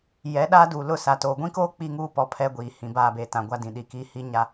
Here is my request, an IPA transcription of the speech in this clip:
jɛ˨˦ ɗaː˦duː˨ lʊ˦˨sa˨ toː˨ɡʷĩ˦koː˦ k͡pi˦ŋuː˦ pɔ˦pʰɛ˦ɡʷiː˨ hĩ˨baː˦˨beː˨tã˨ ɡʷa˦dĩ˨ɗi˨kiː˦ hi˦ɲa˦

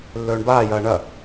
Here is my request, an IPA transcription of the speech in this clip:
lːɵːɳbaːjɐː ɳɐ

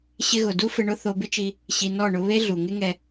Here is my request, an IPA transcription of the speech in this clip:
ɕɪ˧ɣʊ˨ du˦fɪ˧ɳʊ˦ θo˧bɪ˦t͡ʃi˧ | ɕi˨ nɔ˦˨ɳʊ˧ βe˦ɮu˨ ŋɪ˦ŋɛ˧

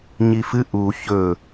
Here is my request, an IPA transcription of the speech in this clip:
ɲifɨ ʔu çɵ

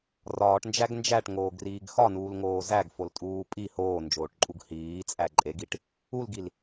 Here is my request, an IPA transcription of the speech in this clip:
rɒːʈnd͡ʒæɡ nd͡ʒæʈŋoːɡriːɡ xɒnuːlŋoː zæɡfoltʼuː pʼi hoːnd͡ʒoːʈǃʼuɡ hiːt͡sʼæ ǃʼeɡiʈ | ulɡil

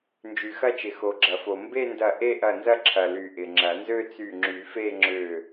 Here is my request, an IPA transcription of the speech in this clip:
nd͡ʒy˩xɐ˥˧t͡ʃɪ˩ xo˩ɡ͡ǁɐ˩fo˩ mbe˥˧ndɐ˧˩ʔe˥˧ ʔɐ˧˩nzɐ˥˧ǁʰɐ˩ly˩ ʔɪ˩ŋ͡ǁɐ˨˩˦ nzø˥˧t͡sy˧˩ŋ͡ǁy˨˩˦fe˥˧ ŋ͡ǁø˧˩

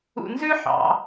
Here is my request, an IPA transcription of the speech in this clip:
ṵ˧nzʉ˥ ħɑ̰˩˧

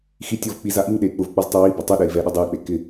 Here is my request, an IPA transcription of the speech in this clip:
xi tʲɔvk͡pi zaʔiŋɗei̯ k͡pʊvk͡pɔz tˤuwiba tˤoɗɛi̯ vɛɗʊ dˤei̯k͡pe kɪ

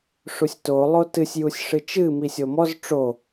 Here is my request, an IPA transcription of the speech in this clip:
ʂusʲto lˠotɨsʲ jusʲʂɨt͡ʃɨ misʲomɔz ʈ͡ʂo

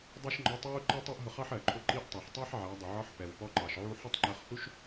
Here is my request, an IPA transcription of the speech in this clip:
dˤɛ˥ʃŋ͡ǃɔ˧˥tˤwu˥ ǃʌ˥ tˤɛ˥ʔɦʊ˧ χɑ˥ħɜ˩ǃʰʊ˧˥ ǃi˧˥ʔtˤɑ˩ħtˤæ˥ħ ʕæ˩˧dˤə˩ʕɒ˧˥ħ pɛ˩wpɔ˧˥ǃɑ˩ʃ ʕu˧ħə˥tˤ ŋ͡ǃɜ˧χhu˥ʃ

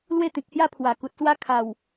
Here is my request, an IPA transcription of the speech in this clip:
lwe˥˧t̪ĩ˨k̚hja˦ pʰwa˨˩ku˨t̚swa˥˧ kʰa˨˩w

